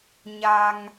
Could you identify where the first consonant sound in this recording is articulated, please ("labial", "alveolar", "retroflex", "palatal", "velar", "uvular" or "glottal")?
palatal